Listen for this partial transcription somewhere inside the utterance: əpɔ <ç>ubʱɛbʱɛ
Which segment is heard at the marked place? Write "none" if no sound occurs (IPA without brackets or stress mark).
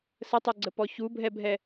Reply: ç